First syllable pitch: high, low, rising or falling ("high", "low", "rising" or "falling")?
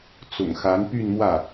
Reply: low